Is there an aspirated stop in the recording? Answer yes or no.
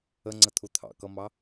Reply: yes